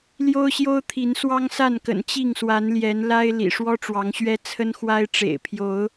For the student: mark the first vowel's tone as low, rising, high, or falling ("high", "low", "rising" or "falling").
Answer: high